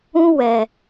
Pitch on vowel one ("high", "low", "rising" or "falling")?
high